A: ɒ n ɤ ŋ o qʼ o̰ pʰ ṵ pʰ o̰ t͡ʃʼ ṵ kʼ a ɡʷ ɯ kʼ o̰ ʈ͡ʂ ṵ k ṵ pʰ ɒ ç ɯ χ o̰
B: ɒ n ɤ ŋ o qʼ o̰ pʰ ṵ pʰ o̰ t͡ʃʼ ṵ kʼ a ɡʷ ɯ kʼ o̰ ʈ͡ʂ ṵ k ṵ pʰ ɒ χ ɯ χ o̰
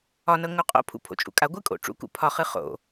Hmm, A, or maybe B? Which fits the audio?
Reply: B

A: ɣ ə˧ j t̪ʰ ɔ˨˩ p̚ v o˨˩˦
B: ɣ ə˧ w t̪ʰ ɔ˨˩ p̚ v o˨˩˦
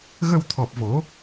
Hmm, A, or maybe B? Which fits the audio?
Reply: B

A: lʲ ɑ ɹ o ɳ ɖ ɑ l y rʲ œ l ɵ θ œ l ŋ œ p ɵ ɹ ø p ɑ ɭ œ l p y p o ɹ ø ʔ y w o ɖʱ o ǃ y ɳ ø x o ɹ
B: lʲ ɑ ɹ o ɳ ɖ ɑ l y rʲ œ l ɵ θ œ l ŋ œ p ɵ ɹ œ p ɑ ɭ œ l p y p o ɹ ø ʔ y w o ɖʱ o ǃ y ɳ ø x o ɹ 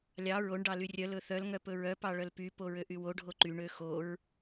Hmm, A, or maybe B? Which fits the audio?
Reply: B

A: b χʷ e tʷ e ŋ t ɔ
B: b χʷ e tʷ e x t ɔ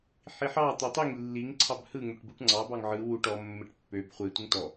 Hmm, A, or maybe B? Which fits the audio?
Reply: A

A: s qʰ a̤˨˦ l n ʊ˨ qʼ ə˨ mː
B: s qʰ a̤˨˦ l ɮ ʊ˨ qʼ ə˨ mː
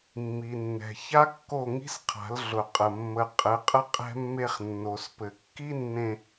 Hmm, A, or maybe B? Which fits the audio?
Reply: B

